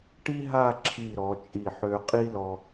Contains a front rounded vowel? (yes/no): yes